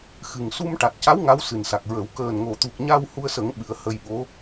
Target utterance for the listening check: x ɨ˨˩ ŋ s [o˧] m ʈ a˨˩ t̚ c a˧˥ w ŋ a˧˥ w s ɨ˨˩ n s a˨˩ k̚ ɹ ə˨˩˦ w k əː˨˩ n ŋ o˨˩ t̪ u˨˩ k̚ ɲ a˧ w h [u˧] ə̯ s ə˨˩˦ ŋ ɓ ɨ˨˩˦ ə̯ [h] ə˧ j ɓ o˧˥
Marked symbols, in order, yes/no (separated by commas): no, yes, yes